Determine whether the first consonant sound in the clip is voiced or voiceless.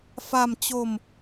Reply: voiceless